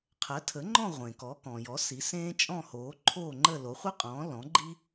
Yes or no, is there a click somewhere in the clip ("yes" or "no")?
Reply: yes